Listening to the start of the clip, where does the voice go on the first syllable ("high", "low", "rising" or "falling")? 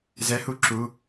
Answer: rising